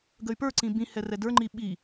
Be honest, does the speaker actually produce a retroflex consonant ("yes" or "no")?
no